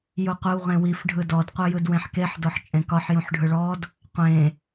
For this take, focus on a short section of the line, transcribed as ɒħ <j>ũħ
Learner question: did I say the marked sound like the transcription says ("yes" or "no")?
yes